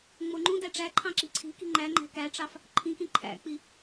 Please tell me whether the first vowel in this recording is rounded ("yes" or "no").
yes